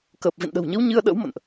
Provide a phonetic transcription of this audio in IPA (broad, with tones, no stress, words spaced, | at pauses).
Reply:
kəː˨˩p̚vḭ˧˨nɗə̤˨˩wɲə˨˦w ɲɨ˧ə̯ɗə̰˧˥wmə̰˧˨nʔ